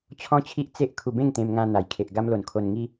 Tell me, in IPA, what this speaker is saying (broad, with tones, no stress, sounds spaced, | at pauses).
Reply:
t͡ɕʰ ɔ̃˦ t͡ɕʰ i˦ ʔ t͡s e˦ ʔ kʰ u˧ b ẽ˥˧ ŋ t̪ ẽ˧ m ŋ ã˧ n̪ a˨˩ j kʰ e˨ ʔ ɡ a˧ m l o˨˩ n kʰ o˧ n ŋ i˦